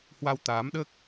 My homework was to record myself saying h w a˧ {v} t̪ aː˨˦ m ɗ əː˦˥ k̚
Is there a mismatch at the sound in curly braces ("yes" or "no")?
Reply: yes